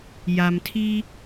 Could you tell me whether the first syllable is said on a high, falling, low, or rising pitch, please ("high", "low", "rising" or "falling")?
low